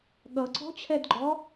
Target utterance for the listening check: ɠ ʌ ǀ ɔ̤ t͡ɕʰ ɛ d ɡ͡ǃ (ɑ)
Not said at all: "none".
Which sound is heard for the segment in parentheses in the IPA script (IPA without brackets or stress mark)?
ɔ